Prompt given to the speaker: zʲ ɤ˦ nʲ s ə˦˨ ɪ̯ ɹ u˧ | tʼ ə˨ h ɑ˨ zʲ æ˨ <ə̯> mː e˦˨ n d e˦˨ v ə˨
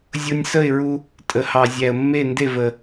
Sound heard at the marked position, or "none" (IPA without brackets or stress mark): ə̯